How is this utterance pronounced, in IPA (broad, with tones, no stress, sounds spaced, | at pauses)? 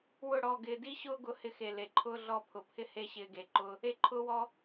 w ʊ˦˨ ɽ ɔ˦˨ ɡ ɪː˧ d i˦ ɕ ʊː˦ ɡ ʊ˧ h ɪ˧ x e˨ l e˨ ǃʰ ʊː˦ ɮ ɔ˦˨ pʰ ʊ˨ pʰ ɪ˦ h e˦ ɕ ɪː˧ ɡ e˨ ǃ ʊ˦ | e˦ ǃʰ ʊː˦ w ɔ˦